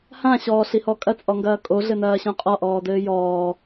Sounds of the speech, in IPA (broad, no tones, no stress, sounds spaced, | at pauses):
h ã ɕ ɔː ɬ i h ɔ kʼ ɐ t͡sʼ ɔ ŋ ɡ ɐː kʼ o ɮ ɘ n ɐː ɕ õ qʼ ɔ ʔ ɔː d ɘː j ɔː